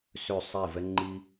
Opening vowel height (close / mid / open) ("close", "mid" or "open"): mid